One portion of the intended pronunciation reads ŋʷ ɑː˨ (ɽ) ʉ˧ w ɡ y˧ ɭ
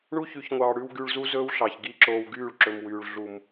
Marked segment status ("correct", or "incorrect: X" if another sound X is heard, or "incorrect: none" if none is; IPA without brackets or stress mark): correct